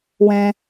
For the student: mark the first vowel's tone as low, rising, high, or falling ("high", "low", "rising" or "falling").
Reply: low